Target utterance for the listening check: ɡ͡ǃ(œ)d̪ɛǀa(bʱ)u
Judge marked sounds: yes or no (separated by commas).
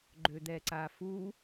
no, no